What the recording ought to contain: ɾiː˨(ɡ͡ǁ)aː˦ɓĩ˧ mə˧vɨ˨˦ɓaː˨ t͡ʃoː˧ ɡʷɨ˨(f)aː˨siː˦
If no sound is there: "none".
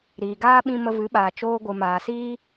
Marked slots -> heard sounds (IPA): ɡ, m

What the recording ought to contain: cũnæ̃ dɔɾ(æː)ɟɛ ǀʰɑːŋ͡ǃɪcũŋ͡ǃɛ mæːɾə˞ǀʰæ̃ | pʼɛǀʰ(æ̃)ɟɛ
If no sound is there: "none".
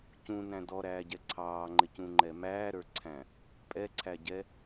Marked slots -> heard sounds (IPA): æː, æ

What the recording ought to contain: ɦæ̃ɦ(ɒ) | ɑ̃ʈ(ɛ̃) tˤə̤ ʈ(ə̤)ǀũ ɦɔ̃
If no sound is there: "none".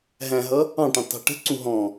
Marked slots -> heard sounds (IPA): ʌ, ɛ̃, ə̤

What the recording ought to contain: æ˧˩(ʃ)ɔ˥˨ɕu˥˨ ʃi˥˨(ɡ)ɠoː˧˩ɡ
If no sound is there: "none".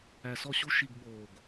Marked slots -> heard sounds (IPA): s, ɡ

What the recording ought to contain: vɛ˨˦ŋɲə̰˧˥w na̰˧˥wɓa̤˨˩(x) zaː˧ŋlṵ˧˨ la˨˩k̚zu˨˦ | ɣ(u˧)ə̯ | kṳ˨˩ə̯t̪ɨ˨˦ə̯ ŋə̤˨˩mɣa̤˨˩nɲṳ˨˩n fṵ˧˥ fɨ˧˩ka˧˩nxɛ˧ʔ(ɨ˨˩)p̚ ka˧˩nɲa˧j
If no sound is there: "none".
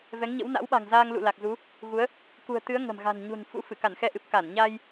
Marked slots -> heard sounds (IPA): ŋ, u˨˦, ɨ˨˩

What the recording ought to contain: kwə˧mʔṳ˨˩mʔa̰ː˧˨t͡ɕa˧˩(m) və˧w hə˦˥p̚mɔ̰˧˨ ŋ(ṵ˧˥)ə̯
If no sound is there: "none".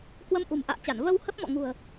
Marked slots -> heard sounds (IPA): n, ṳ˨˩

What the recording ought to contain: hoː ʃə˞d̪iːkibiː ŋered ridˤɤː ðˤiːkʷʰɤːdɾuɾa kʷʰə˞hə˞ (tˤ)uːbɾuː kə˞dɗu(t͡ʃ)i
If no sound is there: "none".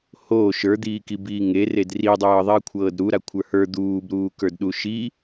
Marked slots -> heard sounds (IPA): d̪, ʃ

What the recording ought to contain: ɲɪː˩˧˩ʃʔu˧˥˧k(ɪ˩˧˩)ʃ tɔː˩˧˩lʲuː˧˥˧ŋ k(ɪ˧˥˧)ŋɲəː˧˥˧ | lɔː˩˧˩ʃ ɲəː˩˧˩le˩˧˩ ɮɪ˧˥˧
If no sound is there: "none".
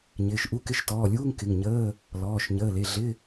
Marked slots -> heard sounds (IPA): ɪ˧˥˧, ɪ˩˧˩

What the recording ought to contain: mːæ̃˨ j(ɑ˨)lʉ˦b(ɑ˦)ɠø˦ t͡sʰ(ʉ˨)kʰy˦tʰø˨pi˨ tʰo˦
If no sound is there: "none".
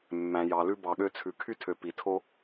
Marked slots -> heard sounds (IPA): ɑ˨, ɑ˨, ʉ˨

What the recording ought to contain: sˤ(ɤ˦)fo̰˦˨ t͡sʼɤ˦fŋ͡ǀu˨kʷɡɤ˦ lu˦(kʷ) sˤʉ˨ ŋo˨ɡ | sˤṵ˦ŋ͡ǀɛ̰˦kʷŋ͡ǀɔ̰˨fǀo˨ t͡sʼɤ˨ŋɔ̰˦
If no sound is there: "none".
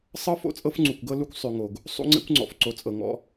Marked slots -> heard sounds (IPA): ɤ˦, kʷ

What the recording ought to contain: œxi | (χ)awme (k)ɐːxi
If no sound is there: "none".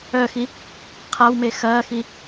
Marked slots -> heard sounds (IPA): qʰ, x

